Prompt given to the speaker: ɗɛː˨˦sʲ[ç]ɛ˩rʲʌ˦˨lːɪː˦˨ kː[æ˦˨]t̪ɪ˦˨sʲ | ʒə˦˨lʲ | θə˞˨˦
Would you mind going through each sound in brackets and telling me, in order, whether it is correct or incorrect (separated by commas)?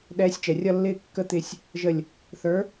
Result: incorrect, incorrect